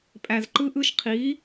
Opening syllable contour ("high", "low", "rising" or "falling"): low